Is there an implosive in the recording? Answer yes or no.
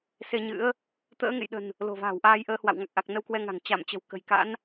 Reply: yes